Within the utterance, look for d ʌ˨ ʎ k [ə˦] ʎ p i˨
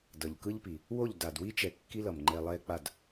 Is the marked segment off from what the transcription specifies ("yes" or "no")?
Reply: yes